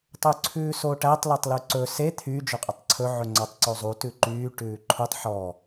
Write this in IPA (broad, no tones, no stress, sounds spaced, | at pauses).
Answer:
tˤ ʉ ǀʰ ʉː s oː ʈ æ tˤ l e tˤ l ʉ ǀ ɵ s e t̪ʰ y d͡ʒ ɵ qʼ ɵ tˤ ǀʰ ɵ ʕ ɵ ŋ͡ǀ ɔ tˤ ǀ o zˤ u t ʉ ǃ yː ʈ ʉː ǃʰ u tˤ ħ ɔ